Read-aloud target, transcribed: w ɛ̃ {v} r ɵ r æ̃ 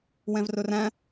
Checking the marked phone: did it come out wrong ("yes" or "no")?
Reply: no